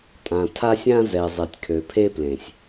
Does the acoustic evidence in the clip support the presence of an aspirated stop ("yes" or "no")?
yes